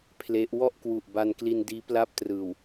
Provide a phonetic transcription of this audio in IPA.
pʰle˦˥ʔ wɔ˥˩ʔkwu˨˩ʔ ba˧nkli˧ndiː˦˥ pla˥˩p̚trɯː˨˩w

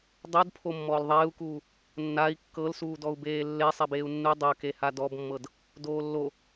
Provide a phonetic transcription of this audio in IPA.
dˤodpʰo mːɔːlðˤeːu̯kuː | nːai̯ kːɤlsuːdɔu̯beː lːe sˤɛbeːu̯nːu dˤɤke hadɔbmːɤd | doːlːo

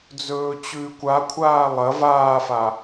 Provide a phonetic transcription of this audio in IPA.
d͡zɵːt͡ɕʉːkʷakʷʰaː lˠɐ vaːfa

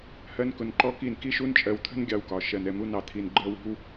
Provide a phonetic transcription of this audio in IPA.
hɜ˦nkʊ˧nǃɔ˦ki˦˨n ki˦ʃu˦nt͡ʃʼɜ˧wt̪ʰə̤˦n ɡʲɑ˧wkɒ˨ ʃɜ˨nɛ˨ mu˧nɑ˨ t̪ʰi˧nɡ͡ǃɜ˦wi̤˦w

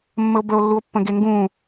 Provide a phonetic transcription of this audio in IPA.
mːəo̯bəo̯lːuo̯pːə̃ ɡeŋɡũ

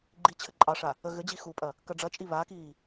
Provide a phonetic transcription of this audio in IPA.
ɡ͡ǃi t͡ɕʰɘǃʼɑʂa | əɣɘd͡ʑi xupʼɐ | kɐɖ͡ʐɐt͡ʃʼi βakiː

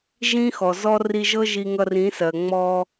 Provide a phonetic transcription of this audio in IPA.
ʒĩ˦xɔ˨zɔ˦ ri˧ʒɤ˦ ʒi˧ŋʌ˧rĩ˨˦sɜ˨ ŋ͡mɔ˧

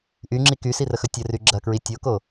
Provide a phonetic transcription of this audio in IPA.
ʔyŋ͡ǁi kysirəxɵ tʲəry ɡ͡ǁɐkɹi tʲoko

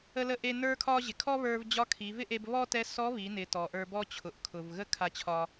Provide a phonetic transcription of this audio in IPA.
ə˧lə˧ʔe˧ nə˞˧kʰɒ˧ ʑɪ˩ kʰɔ˥βə˞˧v d͡ʑɒ˧˥kʰi˩˧vɪ˥ʔe˧b βɔ˥tɛ˧˥ sɔ˧˥βi˩˧nɪ˩˧tɔ˩ ʔə˞˧bɔ˥ t͡ɕʰʊ˩ʔkʰʊ˩vɣə˥ kʰa˧t͡ɕʰɒ˧

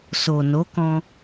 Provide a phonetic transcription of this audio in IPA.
so˨no˨˦kɔ̃˧

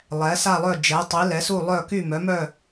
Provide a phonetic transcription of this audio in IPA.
lˠɛ˩˥sa˥˨lˠœ˥˨ d͡ʒɛ˩˥tˤi˩˥ lɛ˩˥su˥˨lˠœ˥˨ ky˥˨mœ˩˥mœ˥˨

